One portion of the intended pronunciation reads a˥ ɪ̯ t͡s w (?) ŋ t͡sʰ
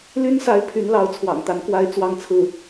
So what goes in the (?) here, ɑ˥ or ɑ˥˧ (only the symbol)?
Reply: ɑ˥˧